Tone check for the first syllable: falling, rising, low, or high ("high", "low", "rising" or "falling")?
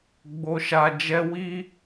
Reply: low